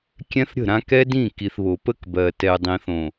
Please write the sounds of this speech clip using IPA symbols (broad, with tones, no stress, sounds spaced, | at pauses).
kʲ ɛ̃˦ θ ɾʲ ə̤˦˨ ɾ ã˦ k ɛ˦ d ĩ˦˨ k i˨ θ β o˨ p ə˦ k b ɜ˨ t ɛ˨ dˤ ĩ˨ θ õ˨